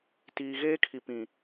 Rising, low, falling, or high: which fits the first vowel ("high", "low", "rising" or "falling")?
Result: low